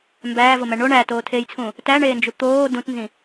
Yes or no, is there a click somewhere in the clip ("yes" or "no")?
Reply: no